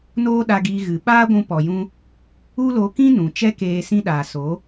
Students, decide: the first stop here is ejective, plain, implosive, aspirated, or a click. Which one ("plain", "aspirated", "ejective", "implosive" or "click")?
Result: implosive